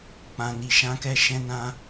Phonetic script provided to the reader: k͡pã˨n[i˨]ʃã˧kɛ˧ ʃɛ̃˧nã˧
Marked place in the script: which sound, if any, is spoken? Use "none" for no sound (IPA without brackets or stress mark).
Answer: i˨